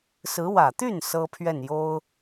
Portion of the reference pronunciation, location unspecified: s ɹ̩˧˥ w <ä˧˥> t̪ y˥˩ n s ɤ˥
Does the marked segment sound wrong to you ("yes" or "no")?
yes